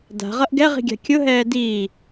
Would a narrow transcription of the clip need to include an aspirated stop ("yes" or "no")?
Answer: no